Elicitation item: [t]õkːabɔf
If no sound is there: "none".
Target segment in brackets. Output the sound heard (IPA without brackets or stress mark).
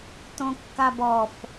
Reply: t